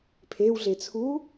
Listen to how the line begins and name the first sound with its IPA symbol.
pʰ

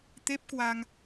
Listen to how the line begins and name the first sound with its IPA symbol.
t̪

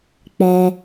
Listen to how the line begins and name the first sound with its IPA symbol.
k͡p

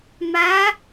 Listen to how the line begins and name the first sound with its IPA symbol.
m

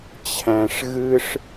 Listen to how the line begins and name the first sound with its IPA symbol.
t͡ɕʰ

